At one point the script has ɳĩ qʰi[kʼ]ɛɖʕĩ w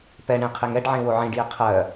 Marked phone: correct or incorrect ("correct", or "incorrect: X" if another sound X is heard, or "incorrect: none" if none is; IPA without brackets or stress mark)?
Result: incorrect: ŋ